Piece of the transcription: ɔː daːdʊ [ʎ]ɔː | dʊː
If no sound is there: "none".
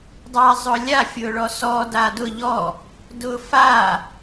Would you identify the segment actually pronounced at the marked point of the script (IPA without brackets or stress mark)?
ʎ